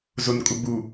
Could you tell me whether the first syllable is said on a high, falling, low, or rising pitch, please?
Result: low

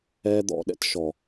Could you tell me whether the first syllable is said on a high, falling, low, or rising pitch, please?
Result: high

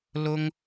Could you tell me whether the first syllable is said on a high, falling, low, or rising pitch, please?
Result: high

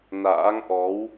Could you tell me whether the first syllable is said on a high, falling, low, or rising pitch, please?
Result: rising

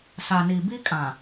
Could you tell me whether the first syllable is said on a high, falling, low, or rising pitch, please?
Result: low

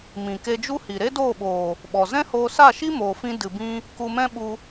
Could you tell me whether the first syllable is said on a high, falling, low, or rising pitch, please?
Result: low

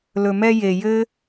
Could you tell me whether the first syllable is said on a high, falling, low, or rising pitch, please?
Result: low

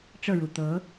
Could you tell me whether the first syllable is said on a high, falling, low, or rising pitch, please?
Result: falling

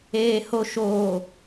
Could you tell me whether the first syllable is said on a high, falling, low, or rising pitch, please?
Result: low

